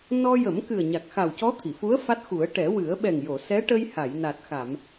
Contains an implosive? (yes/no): yes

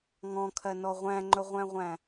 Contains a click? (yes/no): yes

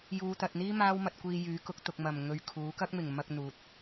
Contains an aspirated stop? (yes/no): yes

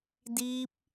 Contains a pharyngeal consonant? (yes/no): no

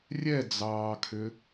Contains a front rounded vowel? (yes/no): yes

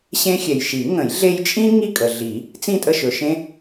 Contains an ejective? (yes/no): yes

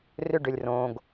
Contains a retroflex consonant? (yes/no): yes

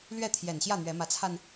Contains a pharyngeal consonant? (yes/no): no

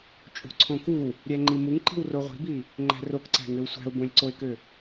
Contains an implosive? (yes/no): no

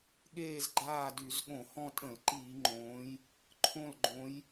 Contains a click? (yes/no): yes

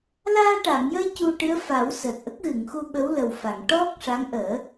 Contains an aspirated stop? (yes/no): no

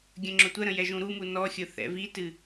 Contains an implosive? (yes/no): no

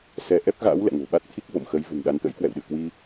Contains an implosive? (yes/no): yes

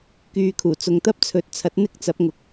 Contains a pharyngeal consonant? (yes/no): no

